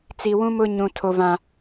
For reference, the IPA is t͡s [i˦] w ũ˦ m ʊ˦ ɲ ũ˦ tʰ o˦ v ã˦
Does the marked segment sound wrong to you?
no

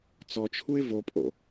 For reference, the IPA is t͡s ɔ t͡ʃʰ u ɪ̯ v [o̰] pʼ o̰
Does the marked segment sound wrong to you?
yes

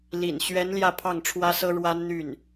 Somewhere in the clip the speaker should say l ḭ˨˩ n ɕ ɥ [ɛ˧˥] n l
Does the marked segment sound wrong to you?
no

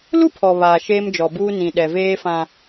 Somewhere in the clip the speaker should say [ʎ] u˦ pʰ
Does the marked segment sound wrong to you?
yes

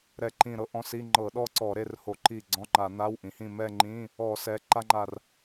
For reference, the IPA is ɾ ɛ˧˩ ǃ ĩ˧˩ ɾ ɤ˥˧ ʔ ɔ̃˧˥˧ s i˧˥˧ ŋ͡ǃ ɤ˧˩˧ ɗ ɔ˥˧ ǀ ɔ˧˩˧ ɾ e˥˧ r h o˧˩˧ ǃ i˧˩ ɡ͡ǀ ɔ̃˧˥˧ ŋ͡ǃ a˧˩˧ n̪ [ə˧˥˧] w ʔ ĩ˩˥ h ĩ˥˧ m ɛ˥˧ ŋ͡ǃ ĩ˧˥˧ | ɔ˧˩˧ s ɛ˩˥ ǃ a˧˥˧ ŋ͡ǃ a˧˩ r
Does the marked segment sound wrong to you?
yes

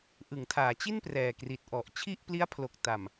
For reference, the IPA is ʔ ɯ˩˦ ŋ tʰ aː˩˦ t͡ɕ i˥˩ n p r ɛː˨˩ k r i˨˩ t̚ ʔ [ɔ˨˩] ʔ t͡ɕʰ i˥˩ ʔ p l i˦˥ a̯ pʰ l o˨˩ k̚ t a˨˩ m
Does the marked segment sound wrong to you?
no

